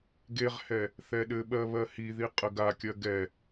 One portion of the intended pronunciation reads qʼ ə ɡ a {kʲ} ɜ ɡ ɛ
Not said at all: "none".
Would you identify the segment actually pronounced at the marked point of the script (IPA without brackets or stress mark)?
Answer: kʲ